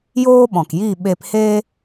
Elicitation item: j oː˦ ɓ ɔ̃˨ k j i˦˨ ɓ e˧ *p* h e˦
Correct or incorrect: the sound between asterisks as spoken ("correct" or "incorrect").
correct